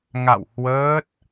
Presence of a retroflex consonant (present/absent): absent